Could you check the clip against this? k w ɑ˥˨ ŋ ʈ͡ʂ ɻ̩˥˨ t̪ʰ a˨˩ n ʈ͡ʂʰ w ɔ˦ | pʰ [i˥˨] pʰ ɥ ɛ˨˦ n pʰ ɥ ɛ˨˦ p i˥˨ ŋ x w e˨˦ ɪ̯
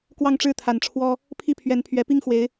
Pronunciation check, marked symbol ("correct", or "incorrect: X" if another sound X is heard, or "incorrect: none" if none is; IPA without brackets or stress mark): correct